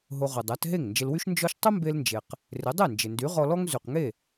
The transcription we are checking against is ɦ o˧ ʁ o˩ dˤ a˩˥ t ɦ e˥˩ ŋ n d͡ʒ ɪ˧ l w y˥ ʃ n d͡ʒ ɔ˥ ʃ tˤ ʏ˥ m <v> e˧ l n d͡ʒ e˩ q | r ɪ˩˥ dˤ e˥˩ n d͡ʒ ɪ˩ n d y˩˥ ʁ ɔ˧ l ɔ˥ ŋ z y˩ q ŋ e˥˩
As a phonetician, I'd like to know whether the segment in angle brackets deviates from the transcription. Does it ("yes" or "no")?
yes